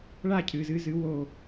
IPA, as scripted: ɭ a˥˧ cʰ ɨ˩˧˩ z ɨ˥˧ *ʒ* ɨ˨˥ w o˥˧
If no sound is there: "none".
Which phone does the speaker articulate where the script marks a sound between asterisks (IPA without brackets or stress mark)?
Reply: z